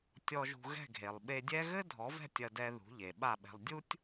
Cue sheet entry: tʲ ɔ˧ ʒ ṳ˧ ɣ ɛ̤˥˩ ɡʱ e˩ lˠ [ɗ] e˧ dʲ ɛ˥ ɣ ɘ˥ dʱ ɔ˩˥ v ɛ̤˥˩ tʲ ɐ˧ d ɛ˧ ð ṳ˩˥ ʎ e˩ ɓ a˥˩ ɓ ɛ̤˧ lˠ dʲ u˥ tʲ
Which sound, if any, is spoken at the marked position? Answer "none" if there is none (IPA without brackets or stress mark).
ɓ